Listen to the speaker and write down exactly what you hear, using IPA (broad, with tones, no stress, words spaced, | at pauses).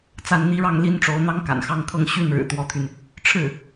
t͡sa˥˩nn̪i˥ɻɑ˥˩ŋ li˥nʈ͡ʂo˧˥ʊ̯n̪ɑ˥ŋ ka̰˨˩nxɑ˥˧ŋkʰɤ˥˧ŋ ɕy˥˩nɻɻ̩˨˩ t̪wɔ˧˥t̪ʰy˧n | ʈ͡ʂʰɻ̩˥˩